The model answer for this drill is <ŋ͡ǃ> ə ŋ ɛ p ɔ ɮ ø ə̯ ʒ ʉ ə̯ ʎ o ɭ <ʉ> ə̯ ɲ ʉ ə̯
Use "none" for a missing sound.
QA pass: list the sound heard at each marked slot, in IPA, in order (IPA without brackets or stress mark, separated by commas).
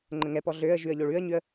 ŋ͡ǃ, ʉ